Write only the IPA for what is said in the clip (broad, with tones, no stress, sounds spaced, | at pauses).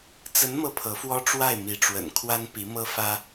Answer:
t͡s ə˧˥ n m ɤ˥˩ pʰ ɤ˧˥ f w ɔ˥ ʈ͡ʂ w a˥˩ ɪ̯ m i˧˥ ʈ͡ʂ w ə̰˨˩ n kʰ w a˥ n p i˧˥ m ɤ˥ f ä˥